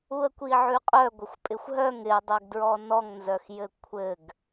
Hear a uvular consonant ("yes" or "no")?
yes